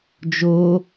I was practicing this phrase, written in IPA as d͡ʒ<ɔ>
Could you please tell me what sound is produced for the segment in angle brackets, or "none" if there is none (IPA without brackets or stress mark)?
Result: o